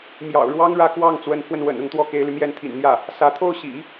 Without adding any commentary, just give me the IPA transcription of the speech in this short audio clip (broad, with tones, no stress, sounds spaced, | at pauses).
m j ɑ̰˨˩ ʊ̯ ɻ w ɑ˥ ŋ ɻ ä˥˧ k w ɑ˥˩ ŋ t͡s w ə˧˥ n pʰ w ə˧ n w ə̰˨˩ n ʊ˥˧ ŋ t̪ w ɔ˥˩ k e˧˥ ɪ̯ l y˧ m j ɛ˥˩ n t̪ʰ ḭ˨˩ n n̪ j ä˥˩ | s ä˧˥ t̪ʰ o˥˩ ʊ̯ ɕ ḭ˨˩˦